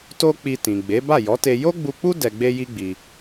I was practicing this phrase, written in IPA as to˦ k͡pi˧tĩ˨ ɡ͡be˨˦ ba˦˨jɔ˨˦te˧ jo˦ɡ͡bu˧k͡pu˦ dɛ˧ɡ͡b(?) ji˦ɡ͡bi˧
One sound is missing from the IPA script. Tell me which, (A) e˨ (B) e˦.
B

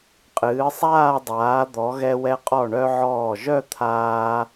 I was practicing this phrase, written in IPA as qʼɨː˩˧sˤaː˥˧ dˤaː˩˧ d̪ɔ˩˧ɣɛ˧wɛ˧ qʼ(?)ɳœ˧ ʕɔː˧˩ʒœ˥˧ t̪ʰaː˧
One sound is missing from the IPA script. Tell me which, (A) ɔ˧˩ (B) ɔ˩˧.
A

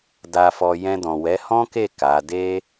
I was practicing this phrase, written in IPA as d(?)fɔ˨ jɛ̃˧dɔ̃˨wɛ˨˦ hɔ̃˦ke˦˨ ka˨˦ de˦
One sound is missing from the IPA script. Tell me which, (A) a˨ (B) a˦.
A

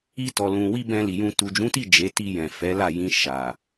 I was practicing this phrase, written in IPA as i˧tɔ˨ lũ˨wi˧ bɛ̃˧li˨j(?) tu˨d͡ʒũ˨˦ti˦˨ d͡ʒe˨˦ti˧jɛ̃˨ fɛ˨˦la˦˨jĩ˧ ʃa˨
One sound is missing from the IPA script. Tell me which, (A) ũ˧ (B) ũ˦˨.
A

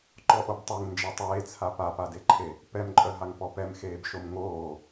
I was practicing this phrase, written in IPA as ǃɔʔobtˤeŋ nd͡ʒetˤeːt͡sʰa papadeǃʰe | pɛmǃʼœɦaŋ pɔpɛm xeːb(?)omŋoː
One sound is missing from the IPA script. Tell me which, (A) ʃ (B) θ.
A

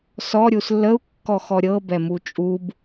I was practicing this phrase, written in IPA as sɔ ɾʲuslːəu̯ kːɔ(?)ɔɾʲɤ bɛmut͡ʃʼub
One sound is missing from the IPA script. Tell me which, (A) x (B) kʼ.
A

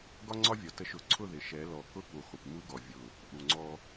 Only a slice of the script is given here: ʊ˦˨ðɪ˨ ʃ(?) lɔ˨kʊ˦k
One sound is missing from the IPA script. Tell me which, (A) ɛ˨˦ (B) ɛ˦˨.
A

